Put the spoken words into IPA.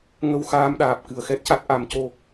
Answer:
ŋə˧wxaː˧mɗaː˨˩p̚ kɨ˨˩ə̯xɛ˦˥t̚ca˦˥t̚ ʔa˨˩˦mco˧

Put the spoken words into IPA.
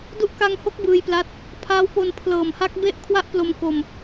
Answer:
du˦˥ʔka˧ŋho˦˥k̚ bɯː˧jpla˦˥t̚ | pʰaː˦˥wpo˧n pʰlɤː˨˩mha˦˥k̚ be˥˩ʔ kʰwa˥˩ʔplo˧m ko˧m

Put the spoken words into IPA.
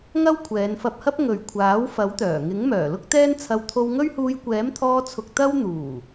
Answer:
ŋɐ˥wkʷʰɛː˨˧nfɐ˧p̚hɐ˥p̚ ŋɵ˨ɥkʷʰaː˨˥w fɐ˨˥wt̪œː˨˩ŋɪ˨˥ŋ mœː˨˩lʊ˥k̚t̪ɛː˥nt͡sʰɐ˧w t̪ʰo˧wŋɵ˥ɥhuː˧j kʷɛː˨˥mt̪ʰɔː˧t͡sʰʊ˨k̚ t̪ɐ˧wn̪uː˨˩

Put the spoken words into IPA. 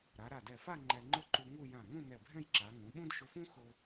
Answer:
ɾa˩˧ɾa˧˩dɛ˧˩fa˥˧ ŋ͡ǃɛ˧ŋ͡ǃʊ˥ǃu˧ ŋu˥˧ jã˧˩ŋũ˥˧ nɛ˧˩bʱɛ̃˥˧jǁa˩˧ ŋũ˩˧ɓũ˥d ʃʊ˧fũ˥ xʊ˧

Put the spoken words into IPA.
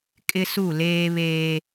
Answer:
kʼɪ˦su˦˨leː˦ βeː˦

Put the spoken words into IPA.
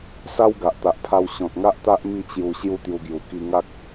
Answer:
sa˦w ɡa˨ʔt̪a˨ʔpʰa˧w ɕɔ̃˨t̚ŋa˦ʔt̪a˦ʔ mi˥˧ t͡ɕju˧ ɕju˥˧t̪ju˧ɡju˨˩ ki˧ŋa˦k̚

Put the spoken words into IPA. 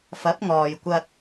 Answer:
fɐ˨˥p̚ŋɔː˨jkʷɐ˧t̚

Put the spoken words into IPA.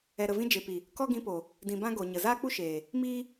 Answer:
ɛ˨ɾə˨vĩ˧ d͡ʒe˨pi˨ | kɔ˦ɡĩ˧po˨ | dĩ˨bã˦ ɡo˨ɲə˨ zaː˦k͡pu˦ʃeː˨ | miː˦

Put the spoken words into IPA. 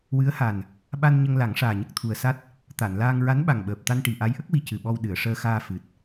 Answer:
wɨ˧˥ə̯ha˨˩n | ɓa˧nɲə˧ŋla˨˩˦ŋ ʂaː˨˩ɲə˦˥k̚t̪ʰu˨˩ə̯sa˦˥t̚ | t̪a˨˩˨nlaː˧ŋ ɹa˧˥nɓa˨˩ŋɓəː˨˩p̚ t̪a˧nʈi˨˩ʔa˧˥jʔə˦˥k̚ wi˧cɨ˨˩ɓɔ˧w ɗɨ˨˩˨ə̯ʂəː˧xaː˧ fɨ˨˩t̚

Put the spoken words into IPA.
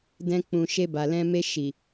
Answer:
dɛ̃˧k͡pũ˨ ʃe˧ba˨ lɛ̃˧ me˧ʃi˨

